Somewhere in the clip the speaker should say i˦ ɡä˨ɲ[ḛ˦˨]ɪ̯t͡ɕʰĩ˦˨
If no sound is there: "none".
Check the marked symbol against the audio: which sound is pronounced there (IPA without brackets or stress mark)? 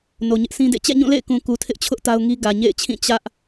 ḛ˦˨